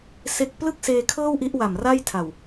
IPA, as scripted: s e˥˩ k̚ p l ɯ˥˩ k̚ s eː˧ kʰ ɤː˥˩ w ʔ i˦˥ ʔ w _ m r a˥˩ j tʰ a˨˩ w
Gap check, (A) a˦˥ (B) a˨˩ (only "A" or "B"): B